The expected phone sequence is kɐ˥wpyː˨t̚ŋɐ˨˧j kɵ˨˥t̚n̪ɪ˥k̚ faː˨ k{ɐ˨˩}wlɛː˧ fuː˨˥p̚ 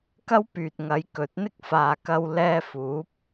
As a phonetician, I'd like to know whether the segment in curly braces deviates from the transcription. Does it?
yes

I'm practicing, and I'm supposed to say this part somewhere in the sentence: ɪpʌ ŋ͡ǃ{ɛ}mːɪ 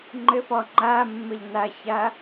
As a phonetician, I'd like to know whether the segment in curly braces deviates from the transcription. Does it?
yes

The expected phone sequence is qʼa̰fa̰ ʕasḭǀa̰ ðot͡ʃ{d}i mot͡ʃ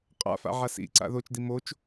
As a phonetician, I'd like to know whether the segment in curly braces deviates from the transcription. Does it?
no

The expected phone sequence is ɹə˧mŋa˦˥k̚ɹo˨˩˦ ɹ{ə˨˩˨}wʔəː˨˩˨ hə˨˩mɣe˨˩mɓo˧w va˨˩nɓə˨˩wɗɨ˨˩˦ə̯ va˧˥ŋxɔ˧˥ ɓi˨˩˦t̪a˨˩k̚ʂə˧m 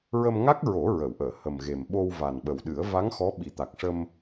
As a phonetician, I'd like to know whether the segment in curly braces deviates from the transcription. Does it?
no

